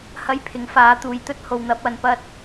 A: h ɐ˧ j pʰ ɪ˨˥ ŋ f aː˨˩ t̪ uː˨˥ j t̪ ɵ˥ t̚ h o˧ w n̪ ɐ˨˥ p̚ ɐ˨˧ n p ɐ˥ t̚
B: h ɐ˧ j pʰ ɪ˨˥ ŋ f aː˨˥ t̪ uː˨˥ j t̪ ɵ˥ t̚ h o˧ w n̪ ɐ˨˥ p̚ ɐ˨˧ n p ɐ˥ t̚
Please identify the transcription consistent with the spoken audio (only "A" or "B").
B